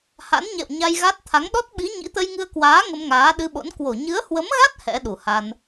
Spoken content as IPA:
h a̰˧˥ n ɲ ɛ̰˧˨ w ɲ a˧ j ɣ a˦˥ t̚ t̪ʰ a˨˦ ŋ ɗ ɔ˦˥ t̚ ɓ i˨˦ ɲ ḭ˧˥ t̪ ə˧ j ŋ ɨ˧ ə̯ k w aː˨˦ ŋ ə˧ m ŋ aː˨˦ ɗ ɨ˧ ɓ o̰˧˥ n k w o˧˩ ɲ ɨ˨˦ ə̯ h w ə˨˦ m ɣ a˦˥ t̚ h ɛ̰˧˥ ɗ u˧˩ h a˧ n

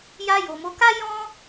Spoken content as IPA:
j a˧ j o˨ m o˨˦ k a˦ j ɔ̃˦

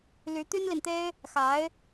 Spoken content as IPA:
l y˧˥ t̪ y˥ n l i˨ n t̪ e˥ ɪ̯ | x a˧˥ ɪ̯

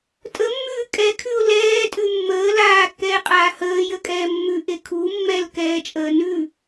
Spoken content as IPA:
tʼ ə mː ʉː kʼ ɛ kʰ ʉ ʊ̯ l ɛː tʼ ʉ mː əː l aː kː ɛː qʼ aː h əː j ə kʼ ɛː mː ʉ ʔ e kʰ u mː ɛ l k ɛː t͡ʃʼ əː n ʉ

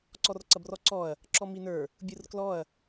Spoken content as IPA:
ǀ ɔ r ǀ ɐ b r ɔ ǀ ɔ ɐ̯ | ǁ ɔ m i n ə˞ | bʲ ɯ r k l ɔ ɐ̯

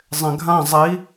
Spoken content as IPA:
zˤ ẽ ɡʱ ã zˤ i

